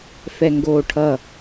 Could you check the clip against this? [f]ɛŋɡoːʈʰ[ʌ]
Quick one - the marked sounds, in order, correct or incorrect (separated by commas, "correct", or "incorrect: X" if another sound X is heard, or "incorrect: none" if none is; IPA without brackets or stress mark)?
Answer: correct, correct